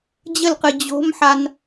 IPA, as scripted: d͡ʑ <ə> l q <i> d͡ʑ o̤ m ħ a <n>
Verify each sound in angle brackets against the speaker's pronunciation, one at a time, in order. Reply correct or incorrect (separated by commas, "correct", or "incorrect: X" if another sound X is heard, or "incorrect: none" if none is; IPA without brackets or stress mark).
correct, incorrect: ɨ, correct